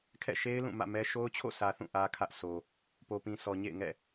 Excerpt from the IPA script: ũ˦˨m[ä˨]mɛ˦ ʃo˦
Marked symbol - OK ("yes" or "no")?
no